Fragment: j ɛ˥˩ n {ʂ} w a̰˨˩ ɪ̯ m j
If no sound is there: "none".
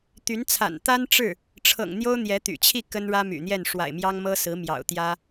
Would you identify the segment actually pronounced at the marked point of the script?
ʂ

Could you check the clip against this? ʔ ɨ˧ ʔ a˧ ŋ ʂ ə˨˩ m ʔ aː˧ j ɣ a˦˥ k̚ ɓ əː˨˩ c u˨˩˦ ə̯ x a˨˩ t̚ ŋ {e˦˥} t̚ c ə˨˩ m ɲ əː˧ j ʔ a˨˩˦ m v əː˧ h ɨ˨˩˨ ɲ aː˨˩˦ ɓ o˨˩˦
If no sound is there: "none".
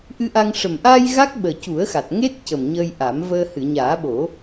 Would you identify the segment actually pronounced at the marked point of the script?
e˦˥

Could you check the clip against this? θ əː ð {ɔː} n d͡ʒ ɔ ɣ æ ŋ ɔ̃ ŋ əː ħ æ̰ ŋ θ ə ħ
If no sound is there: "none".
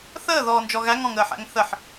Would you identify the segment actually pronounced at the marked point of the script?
ɔː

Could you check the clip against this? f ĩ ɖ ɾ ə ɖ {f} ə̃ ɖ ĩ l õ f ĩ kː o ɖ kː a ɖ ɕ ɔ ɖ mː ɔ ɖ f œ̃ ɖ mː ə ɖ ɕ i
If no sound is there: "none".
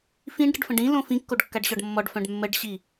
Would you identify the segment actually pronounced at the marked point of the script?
f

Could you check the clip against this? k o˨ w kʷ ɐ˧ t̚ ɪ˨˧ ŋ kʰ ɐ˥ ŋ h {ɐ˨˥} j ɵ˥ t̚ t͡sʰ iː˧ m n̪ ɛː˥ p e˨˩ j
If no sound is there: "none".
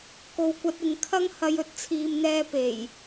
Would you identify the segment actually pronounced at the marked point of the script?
ɐ˧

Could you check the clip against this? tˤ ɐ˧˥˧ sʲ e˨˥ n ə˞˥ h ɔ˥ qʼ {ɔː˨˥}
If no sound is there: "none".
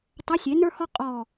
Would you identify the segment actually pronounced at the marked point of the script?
ɔː˥˧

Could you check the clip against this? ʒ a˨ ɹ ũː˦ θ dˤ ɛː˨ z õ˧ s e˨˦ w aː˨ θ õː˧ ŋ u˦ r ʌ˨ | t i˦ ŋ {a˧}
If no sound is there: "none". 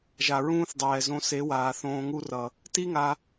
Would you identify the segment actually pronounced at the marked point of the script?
a˧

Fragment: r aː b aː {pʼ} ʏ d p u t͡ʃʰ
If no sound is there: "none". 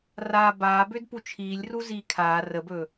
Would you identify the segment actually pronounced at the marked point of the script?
b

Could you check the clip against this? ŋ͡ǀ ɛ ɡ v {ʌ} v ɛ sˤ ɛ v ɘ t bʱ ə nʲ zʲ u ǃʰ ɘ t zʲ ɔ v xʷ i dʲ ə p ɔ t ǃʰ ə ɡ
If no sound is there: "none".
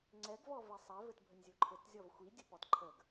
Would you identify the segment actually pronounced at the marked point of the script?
ɔ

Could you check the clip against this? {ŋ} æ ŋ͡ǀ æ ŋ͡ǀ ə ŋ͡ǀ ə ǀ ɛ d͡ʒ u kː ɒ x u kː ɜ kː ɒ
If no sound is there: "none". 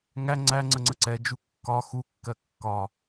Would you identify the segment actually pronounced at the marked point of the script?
ŋ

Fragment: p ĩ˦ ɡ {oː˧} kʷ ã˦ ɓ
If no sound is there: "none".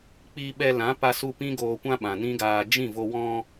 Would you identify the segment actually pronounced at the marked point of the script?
oː˧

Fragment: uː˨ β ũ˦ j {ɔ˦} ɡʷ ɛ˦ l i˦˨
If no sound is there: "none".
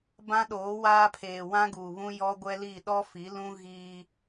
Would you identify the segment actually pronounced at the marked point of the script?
ɔ˦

